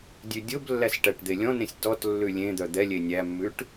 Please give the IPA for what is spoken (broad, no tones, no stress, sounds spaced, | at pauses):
dʲ ʉ dʲ o b lː æ s ʈ æ ʈ d̪ e lʲ ɔ̃ n ẽ sʲ t ɔ t lː ʉ lʲ ẽ d̪ œ d̪ ɛ lʲ e nʲ æ mː ʉ ʈ